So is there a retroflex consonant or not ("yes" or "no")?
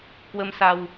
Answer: no